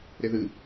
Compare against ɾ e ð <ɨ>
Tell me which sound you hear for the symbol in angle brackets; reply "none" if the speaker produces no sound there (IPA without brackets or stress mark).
ɨ